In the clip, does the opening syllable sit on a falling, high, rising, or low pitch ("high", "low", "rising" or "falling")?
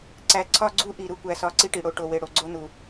low